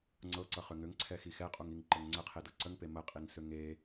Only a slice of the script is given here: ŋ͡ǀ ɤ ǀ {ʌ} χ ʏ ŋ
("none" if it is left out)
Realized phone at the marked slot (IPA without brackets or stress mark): ʌ